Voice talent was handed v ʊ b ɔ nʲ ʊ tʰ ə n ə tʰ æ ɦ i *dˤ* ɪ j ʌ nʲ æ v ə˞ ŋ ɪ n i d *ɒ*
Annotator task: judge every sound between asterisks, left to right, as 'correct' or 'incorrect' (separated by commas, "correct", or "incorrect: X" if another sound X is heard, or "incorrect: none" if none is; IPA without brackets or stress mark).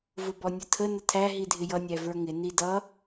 incorrect: dʱ, incorrect: ʌ